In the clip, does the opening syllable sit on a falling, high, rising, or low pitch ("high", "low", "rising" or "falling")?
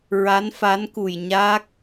rising